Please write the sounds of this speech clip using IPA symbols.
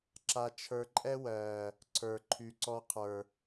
ǁa˧t͡ʃʰə˞˧ǃʼɛ˦wɜː˨ | ǀʰə˞˨ǃʰy˨ǀɔ˧ qʰə˞˨

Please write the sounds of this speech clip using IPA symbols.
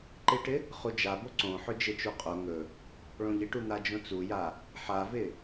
ǃɪʈɪ | χud͡ʒabo ǀõħɵ d͡ʒɪt͡ʃu qʼo ŋɵ | ɭõʎɪʈu n̪ad͡ʒõt͡suja | ħavɪ

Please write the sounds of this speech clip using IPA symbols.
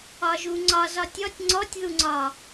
ɒʒuŋ͡ǀɒz ɒtʲɔtʲ ŋ͡ǀɔtʲðuŋ͡ǀɒ

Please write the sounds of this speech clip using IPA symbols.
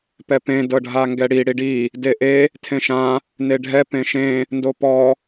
pɛpẽ dɤɖʱaŋɡɛɽi ɽiɖi | deʔe | tʰẽʃã | neɖʱɛ pẽʃẽ | ndopɔ

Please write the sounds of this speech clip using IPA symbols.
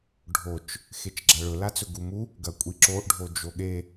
ɖʱot͡ʃ | xet͡ʃɡ͡ǁaɭɵ lat͡sɵɡumu | ɡɐkʷʼiǁoʔ ɖʱod͡ʒoɠe

